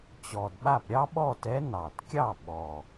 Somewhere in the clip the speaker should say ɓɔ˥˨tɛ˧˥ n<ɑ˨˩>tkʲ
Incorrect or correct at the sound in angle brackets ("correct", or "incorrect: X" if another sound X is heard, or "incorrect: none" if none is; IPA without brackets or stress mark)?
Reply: correct